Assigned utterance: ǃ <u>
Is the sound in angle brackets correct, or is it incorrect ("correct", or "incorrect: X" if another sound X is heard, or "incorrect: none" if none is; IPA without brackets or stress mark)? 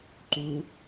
correct